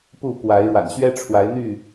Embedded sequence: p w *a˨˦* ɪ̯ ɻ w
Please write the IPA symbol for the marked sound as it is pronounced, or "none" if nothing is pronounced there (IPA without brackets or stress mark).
a˨˦